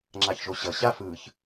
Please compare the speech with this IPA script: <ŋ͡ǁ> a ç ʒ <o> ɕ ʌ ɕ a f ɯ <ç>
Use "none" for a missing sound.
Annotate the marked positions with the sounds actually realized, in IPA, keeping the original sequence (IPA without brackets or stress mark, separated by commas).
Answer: ŋ͡ǁ, o, ç